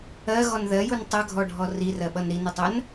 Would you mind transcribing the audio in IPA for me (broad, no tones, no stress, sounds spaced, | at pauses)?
ɜ ɣ ɔ n ð ɜ j u n tˤ ʌ ɡʱ ɔ ɖʱ ɔ r i r ɜ ɓ ʌ n ɾ i n ə tˤ ɜ n